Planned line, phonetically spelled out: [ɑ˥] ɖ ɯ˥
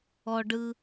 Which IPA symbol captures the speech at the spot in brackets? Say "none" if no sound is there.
ɔ˥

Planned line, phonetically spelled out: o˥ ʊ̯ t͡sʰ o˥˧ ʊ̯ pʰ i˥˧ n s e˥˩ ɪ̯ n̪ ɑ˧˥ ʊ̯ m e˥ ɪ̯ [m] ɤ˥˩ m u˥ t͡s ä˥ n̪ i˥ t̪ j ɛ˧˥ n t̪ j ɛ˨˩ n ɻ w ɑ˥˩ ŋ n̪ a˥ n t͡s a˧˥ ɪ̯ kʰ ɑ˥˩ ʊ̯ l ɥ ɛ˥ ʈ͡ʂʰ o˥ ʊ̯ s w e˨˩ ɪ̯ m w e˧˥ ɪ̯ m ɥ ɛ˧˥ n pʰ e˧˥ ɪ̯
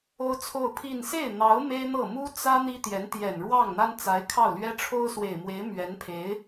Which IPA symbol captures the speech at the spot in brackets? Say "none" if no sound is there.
n̪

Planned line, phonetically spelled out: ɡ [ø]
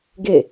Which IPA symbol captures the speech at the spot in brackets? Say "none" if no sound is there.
e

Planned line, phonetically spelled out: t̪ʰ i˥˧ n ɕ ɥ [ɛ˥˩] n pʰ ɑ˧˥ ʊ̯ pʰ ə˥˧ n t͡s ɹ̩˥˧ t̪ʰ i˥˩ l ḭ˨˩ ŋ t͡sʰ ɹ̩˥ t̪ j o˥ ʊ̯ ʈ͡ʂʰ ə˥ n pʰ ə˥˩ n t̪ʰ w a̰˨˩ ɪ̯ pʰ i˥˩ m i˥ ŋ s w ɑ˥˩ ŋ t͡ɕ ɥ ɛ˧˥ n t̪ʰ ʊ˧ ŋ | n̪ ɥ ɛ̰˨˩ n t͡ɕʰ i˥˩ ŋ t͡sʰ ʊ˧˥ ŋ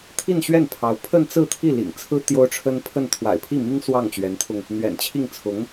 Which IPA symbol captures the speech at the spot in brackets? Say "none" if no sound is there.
ɛ˥˩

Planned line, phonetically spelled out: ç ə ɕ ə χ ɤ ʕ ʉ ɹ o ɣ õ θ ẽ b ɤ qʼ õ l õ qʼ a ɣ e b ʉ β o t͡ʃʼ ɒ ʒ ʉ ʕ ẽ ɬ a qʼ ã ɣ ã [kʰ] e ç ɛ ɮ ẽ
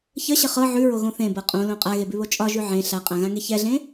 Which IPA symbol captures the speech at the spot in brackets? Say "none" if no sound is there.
ŋ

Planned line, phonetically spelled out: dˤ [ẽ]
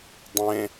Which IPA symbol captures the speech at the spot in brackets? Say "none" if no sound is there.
ẽ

